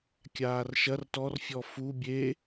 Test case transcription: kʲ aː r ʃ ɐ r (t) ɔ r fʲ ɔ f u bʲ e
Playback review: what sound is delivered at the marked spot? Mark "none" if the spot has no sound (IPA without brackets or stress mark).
t